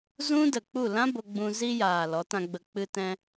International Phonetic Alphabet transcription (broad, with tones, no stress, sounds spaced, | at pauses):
z ũ˦ d ə˨ k͡p u˦˨ l ã˦ b o˧ ɡ͡b ũ˧ z i˧ j aː˨ l ɔ˨˦ t ã˧ ɡ͡b ə˧ k͡p ɨ˧ t ɛ̃˧